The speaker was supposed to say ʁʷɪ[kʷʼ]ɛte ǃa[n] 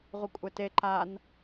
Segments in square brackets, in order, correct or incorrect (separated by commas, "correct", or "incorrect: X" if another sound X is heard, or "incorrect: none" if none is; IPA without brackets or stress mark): correct, correct